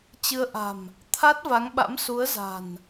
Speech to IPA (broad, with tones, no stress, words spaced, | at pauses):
t͡ɕɨ˧ə̯ ʔa̤˨˩m | t̪ʰa˦˥t̚va˨˦ŋɓa̰˧˥msu˨˦ə̯ za̤˨˩n